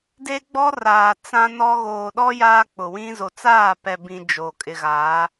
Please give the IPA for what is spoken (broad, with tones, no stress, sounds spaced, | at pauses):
d e˦ ɡ͡b ɔ˦ r aː˨ t͡s ã˦ n ɔ˦ ɣ oː˨ ɗ ɔ˦ j aː˦ k͡p ʊ˨ w ĩ˦ z o˨ t͡s aː˦˨ p ɛ˨ b ĩ˨ d͡ʒ o˨ kʼ ɪ˨ ɣ a˨˦